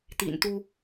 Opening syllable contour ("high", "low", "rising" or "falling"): low